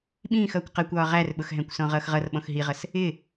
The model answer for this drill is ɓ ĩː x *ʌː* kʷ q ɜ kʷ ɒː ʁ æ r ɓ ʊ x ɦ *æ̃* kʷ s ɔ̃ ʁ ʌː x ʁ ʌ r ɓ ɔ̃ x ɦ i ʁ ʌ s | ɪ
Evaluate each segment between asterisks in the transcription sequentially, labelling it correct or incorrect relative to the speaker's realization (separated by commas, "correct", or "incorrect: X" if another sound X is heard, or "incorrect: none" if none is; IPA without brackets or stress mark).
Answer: correct, correct